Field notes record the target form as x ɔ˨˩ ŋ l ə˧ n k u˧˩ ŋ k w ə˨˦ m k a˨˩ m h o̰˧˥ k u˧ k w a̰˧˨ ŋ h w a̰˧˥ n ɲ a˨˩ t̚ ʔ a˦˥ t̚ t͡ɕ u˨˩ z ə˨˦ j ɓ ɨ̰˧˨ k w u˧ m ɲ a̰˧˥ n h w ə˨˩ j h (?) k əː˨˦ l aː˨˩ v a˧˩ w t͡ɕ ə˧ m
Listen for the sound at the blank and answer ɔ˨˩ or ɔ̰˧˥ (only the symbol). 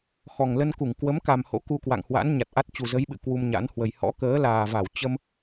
ɔ̰˧˥